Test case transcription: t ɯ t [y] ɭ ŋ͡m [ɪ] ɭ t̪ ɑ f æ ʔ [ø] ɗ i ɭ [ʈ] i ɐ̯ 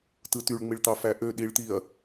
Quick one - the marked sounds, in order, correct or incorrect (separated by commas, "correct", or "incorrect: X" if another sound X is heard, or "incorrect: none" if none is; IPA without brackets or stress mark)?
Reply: correct, incorrect: i, correct, incorrect: t̪